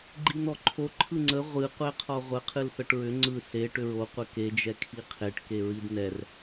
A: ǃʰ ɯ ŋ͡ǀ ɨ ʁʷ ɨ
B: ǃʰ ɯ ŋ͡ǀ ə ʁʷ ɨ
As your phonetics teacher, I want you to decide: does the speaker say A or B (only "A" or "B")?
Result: B